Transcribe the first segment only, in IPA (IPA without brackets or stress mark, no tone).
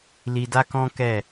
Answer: l